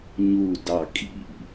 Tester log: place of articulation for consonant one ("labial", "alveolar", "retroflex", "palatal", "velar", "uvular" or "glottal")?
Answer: palatal